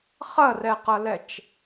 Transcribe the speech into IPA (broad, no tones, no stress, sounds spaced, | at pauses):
χ ɐ r ɛ q ɐ l ɛ t͡ʃ